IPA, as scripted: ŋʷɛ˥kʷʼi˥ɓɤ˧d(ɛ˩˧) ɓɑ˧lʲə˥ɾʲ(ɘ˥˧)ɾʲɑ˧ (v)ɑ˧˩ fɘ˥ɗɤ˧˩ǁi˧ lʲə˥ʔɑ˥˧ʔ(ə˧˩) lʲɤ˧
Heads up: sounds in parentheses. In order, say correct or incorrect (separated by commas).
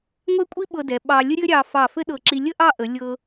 correct, incorrect, incorrect, incorrect